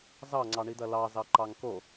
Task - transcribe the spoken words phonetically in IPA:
z ɑ ŋ͡ǀ ɑ ɳ i d̪ ɐ l ɑ z ɑ ǃ ɑ ŋ k o

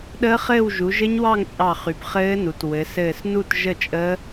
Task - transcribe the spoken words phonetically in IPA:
ɗ əː˦˥ χ ɘː˥˧ w ʒ u˩˧ ʒ ɘ˦˥ ɲ w ɑ˥˧ ŋ t͡ʃʼ ɑ˧˩ χ y˩˧ b χ ɘː˦˥ n u˩˧ t w ɘ˩˧ s ɘː˧˩ s n u˥˧ t ʒ ə˥˧ t͡ʃʼ əː˦˥

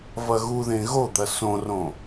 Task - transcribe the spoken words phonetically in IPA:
v ɐ ɣ u ð ẽ ɣ o d̪ ɐ s õ r õ

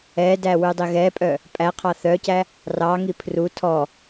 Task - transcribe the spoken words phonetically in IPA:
ɛ d æ w ʉ dˤ i ɣ ɛ pʼ œ | pʼ æ qʰ ɑ θ œ c æ | r ɑ ŋ i pʰ r u tʰ ɔ

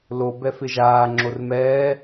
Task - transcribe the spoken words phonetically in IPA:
l o b ɛ f ɪ ʒ aː ŋ͡ǁ o r m ɛː

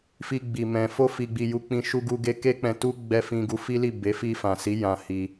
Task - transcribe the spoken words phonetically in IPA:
f i˧ ɡ͡b i˨ m ɛ̃˨ f o˧ f i˨ ɡ͡b i˨ j u˧ k͡p ĩ˧ ʃ u˧ ɡ u˧ ɡ e˧ k e˦ k͡p ɛ̃˧ t u˦ ɡ͡b ɛ˧ f ĩ˧ ɡ u˧ f i˦ l i˦˨ b e˨˦ f i˧ f ã˨ s i˨˦ j ã˧ h i˧

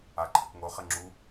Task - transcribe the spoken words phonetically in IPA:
a ǃʰ ɘ k ŋ o χ ɘ ŋ͡ǁ u

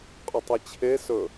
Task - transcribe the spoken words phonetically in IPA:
qʼ ɵ tˤ i t͡ɕʰ e s ɵ

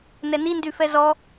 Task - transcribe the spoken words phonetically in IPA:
n ɛ n i n d y f ɛ z ɔ

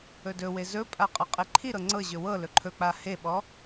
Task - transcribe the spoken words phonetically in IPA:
ɵ d ɵ w e z ɵ pʼ a qʼ ɤ qʼ e ǃʰ i ɾ ɤ ŋ͡ǀ ɤ ʑ ɵ w ɤ l ɵ ǃʰ ɵ k͡p a h e ɓ ɔ

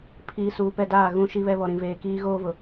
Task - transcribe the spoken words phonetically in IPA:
pʰ iː˨ s uː˨ p ɛ˦˨ d aː˦˨ ɣ ũ˦˨ ʃ i˦ β ɛ˦ β ɔ˨ ɾ ĩ˨ v eː˨ k iː˦ ɣ oː˦ v ʊ˨

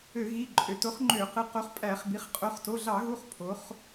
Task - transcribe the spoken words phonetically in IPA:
ø˧˩˧ ɣ i˩˧˩ ǃʼ ø˩˧ t o˩˥ χ ŋ͡ǃ ø˧˩˧ q ɯ˩˥ q o˩˥ χ pʼ æ˧˩˧ χ b i˩˥ χ qʼ o˩˧˩ χ t o˩˧˩ ɮ ɑ˧˩˧ ɣ u˩˧˩ χ pʰ o˩˧ χ

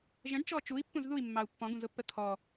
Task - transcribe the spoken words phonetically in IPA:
ʒ ə̃ ɖ t͡ʃ ɔ t͡ʃ u i̯ pː ũ z ð u i̯ mː ɑ u̯ pː ɔ̃ ɡ ũ z ʊ pː ə t̪ʰ ɔ

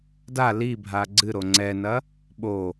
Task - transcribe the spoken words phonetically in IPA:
d a l i bʱ a ɡ͡ǀ ɨ ɾ o ŋ͡ǀ ɛ n ɐ | ɓ o

